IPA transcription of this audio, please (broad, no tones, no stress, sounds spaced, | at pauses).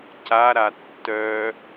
c a ɾ a tː œ